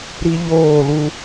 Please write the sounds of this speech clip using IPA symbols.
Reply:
ɾi˦ʎoː˦˨lu˦

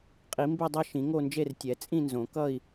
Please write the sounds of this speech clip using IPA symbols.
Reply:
qʼi˨˩˦mbe˥˧dˤʌ˥˧ ʃĩ˨˩˦ŋo˥˧nd͡ʒe˥˧r tʲɛ˨˩˦t͡sʼĩ˥˧nzõ˨˩˦ kʌ˥˧i̯

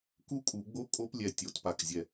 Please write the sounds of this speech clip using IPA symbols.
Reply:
ku˥˧kʼu˨˩˦ɡ͡bo˥˧ kʼo˦˥plʲɛ˩˧˩ tʲo˨˩˦tpa˩˧˩k zʲɛ˧˩

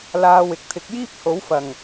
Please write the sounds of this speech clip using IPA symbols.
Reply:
laː˧wɪ˨k̚ t̪ʰɪ˨˥k̚jiː˥p̚ ho˨˥wfɐ˨˩ŋ

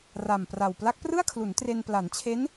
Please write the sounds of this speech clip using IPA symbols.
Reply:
ra˨˩mpra˨˩w pla˦˥k̚prɯ˥˩a̯kʰlu˩˦n tre˧n pla˩˦nt͡ɕʰe˦˥n

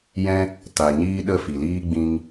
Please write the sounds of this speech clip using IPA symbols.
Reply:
jɛ̃˦ | ta˨ ɲiː˦ɗə˦˨fi˨liː˦ ɡ͡bĩ˧ŋ

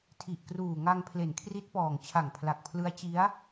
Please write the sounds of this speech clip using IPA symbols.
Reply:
tʰi˨˩ʔkruː˨˩ŋa˧ŋ pʰle˨˩nkʰri˦˥t̚pɔː˨˩ŋ t͡ɕʰa˨˩ŋpʰla˨˩k̚pʰlɯ˦˥a̯ t͡ɕi˦˥a̯

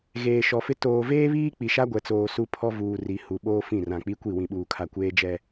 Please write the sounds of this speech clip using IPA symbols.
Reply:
ɣeː˨ʃɔ˨fɪ˦ toː˨veː˦βiː˦ k͡pi˨ʃa˦ɡʷɛ˨t͡soː˨ su˦pʰɔ˦vuː˨ ri˨hu˨ ɓoː˦ fĩ˦˨rã˨ k͡pi˦kʷi˦˨ wĩ˨ɓuː˨kʰa˨ kʷeː˦d͡ʒɛ˦

